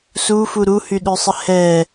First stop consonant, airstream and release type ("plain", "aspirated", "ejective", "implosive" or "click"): implosive